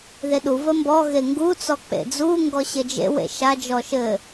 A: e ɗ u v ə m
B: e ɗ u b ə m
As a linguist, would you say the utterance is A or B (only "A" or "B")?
A